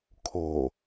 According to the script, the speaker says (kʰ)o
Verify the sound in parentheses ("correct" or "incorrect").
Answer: correct